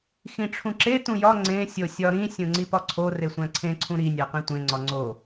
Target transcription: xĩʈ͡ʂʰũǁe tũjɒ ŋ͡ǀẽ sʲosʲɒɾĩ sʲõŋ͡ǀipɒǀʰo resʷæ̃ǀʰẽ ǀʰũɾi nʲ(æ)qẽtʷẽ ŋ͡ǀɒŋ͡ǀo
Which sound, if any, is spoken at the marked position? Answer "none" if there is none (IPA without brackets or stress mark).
æ